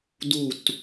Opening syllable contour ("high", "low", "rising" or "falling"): falling